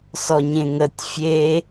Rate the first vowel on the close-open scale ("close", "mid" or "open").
mid